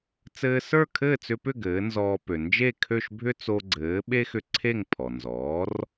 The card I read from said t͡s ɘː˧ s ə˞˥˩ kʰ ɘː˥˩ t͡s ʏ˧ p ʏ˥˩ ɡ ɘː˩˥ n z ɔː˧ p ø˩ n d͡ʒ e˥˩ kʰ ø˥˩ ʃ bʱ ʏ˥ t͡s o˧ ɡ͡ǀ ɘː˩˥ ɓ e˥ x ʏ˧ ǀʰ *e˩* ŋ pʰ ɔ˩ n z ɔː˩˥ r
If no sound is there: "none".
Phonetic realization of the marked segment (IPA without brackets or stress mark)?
e˥˩